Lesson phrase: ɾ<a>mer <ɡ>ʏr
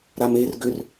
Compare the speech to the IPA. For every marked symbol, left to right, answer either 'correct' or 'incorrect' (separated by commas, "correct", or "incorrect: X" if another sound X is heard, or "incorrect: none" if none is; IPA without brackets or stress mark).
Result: correct, correct